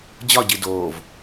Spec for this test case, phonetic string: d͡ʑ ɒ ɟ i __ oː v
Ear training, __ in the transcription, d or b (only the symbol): d